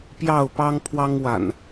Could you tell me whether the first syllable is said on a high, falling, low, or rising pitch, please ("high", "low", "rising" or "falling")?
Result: falling